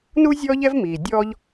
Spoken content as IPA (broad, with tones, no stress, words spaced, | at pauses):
nu˥zʲɔː˦ʎɛ˦v miː˩dʲɔː˥ʎ